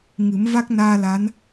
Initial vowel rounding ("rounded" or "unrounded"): unrounded